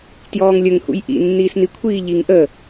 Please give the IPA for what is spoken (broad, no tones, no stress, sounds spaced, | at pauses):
t j ɔː ŋ lʲ ə ŋ h ṵ j ʔ ḭ nː iː s n i kʷʰ iː ʎ i ŋ ʔ ə